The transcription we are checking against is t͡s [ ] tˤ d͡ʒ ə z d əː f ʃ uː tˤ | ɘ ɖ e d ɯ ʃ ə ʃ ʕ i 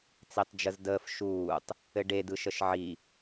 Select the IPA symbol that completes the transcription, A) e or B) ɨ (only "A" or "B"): A